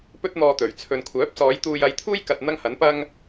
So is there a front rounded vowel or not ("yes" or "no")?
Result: yes